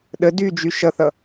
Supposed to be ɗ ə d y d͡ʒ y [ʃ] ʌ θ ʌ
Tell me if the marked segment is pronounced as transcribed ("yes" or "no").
yes